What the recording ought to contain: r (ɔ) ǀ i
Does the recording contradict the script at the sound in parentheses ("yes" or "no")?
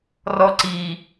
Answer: no